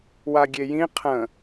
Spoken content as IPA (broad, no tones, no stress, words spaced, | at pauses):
waɡʲejĩ qʰə̃